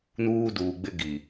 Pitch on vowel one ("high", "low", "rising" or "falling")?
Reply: high